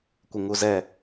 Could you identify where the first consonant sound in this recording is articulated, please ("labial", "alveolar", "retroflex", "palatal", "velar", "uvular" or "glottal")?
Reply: velar